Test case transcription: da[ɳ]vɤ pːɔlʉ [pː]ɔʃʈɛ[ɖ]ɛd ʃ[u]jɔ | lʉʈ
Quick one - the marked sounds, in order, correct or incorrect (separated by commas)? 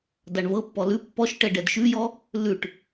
correct, correct, correct, incorrect